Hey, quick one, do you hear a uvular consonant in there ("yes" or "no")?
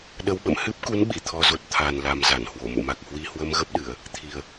no